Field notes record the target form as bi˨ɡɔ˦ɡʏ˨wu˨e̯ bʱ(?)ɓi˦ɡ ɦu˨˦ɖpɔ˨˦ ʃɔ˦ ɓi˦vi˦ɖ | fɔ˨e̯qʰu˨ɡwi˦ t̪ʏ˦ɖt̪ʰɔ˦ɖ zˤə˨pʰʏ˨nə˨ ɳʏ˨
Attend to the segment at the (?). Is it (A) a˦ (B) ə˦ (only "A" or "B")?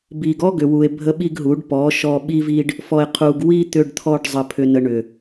B